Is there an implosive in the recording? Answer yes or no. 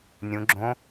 no